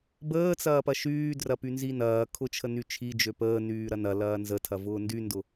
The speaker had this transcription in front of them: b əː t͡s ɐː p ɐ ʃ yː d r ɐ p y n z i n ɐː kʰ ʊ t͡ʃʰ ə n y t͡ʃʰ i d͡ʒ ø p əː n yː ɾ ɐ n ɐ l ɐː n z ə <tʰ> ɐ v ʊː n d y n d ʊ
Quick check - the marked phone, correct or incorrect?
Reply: correct